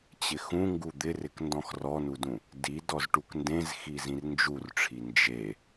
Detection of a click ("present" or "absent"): absent